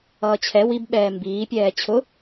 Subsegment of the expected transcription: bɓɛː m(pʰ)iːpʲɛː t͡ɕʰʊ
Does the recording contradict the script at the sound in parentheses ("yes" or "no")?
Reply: yes